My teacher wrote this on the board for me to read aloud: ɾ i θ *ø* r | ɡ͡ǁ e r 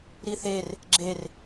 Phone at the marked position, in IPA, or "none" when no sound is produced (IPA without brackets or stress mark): e